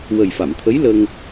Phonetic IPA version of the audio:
w ə˨˩ j f a˨˩˨ m t̪ʰ ə˧˥ j l ə˧ ŋ

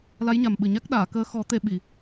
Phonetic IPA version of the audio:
l a˧˥ j ɲ a˨˩ m ɓ ɨ˨˩ ɲ a˦˥ k̚ ɗ aː˨˩˨ k əː˧˥ x ɔ˨˩˦ t̪ e˨˩˨ ɓ i˨˩˨

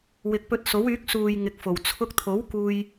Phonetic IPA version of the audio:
w ɪ˨ k̚ p ɵ˧ t̚ s o˨˥ w yː˨˥ k̚ s uː˨ j ŋ ɪ˨˥ k̚ f o˨˩ w t͡sʰ ʊ˧ k̚ t̪ʰ o˨˥ w k uː˥ j

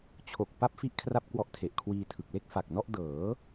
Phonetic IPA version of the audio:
t͡ɕʰ o˨˩ k̚ p a˥˩ p̚ f i˥˩ ʔ kʰ r a˥˩ p̚ k w ɔ˦˥ ʔ tʰ e˨˩ ʔ kʰ w iː˧ tʰ ɯ˨˩ k̚ l e˥˩ k̚ f a˨˩ k̚ n ɔ˥˩ ʔ d ɤː˩˦

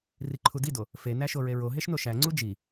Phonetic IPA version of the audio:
r i ǃʰ u d i d o | f e n æ ʃ o ɹ e ɹ o ɦ e ʃ n o ʃ æ ŋ͡ǀ u d͡ʒ i

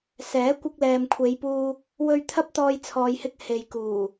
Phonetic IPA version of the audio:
s ɛː˨˥ kʷ ɪ˧ k̚ l ɛː˨ m kʷʰ e˨˧ j p uː˧ | w ɵ˧ ɥ t̪ʰ ɐ˥ p̚ t̪ ɔː˧ j t͡sʰ ɔː˨ j h ɪ˧ k̚ h e˨ j k uː˨˩

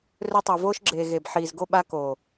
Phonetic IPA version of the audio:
r ɵ˧ tˤ o˨ v oː˧ ʃ ɡ͡ǁ eː˨ ɣ e˨ b ħ iː˨ z ɡ o˧ ɓ a˧ k oː˨

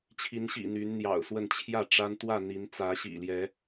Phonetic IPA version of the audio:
t͡ɕʰ i˨˦ n ɕ ḭ˨˩ n̪ y˨˦ n n̪ j ɑ̰˨˩ ʊ̯ s w ə˥˨ n t͡ɕʰ j ä˥˨ ʈ͡ʂ a˦ n t̪ w ä˥˨ n̪ i˨˦ n t͡s ä˨˦ ɕ ḭ˨˩ l j ɛ˨˦

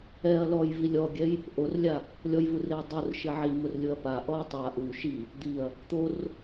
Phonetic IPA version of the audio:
ɛ ɐ̯ l ɔ j v i lʲ ɔ ɡʲ ɛ j | ʔ o r lʲ a | lʲ ɔ j v u r e ɐ̯ dˤ o r ʃ ɪ ʕ i m ʊ r lʲ ʊ ɐ̯ p a ʔ ɔ ɐ̯ tˤ a ʔ u ʃ i | d̪ i ɐ̯ | t̪ o r

